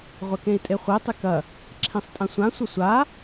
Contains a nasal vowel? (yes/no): yes